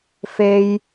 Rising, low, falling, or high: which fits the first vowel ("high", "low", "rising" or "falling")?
high